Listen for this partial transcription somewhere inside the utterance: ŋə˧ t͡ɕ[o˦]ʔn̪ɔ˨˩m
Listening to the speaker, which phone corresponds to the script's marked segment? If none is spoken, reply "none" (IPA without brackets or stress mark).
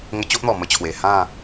o˦